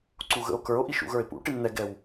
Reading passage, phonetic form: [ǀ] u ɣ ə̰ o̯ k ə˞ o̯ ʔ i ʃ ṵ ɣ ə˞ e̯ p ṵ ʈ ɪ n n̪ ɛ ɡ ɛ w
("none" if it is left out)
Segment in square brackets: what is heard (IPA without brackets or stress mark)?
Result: ǀ